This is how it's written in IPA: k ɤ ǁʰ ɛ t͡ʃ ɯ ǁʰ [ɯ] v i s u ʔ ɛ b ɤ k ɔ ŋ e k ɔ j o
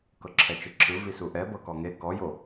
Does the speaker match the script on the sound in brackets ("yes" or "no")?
yes